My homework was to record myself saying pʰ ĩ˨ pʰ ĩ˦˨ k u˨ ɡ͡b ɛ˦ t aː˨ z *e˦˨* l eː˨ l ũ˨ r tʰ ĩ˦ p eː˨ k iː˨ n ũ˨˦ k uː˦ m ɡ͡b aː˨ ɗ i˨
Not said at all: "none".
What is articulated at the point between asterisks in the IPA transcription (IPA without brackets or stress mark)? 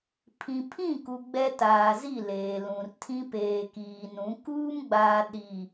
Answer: i˦˨